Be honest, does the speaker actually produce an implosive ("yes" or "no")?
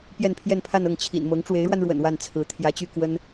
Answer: no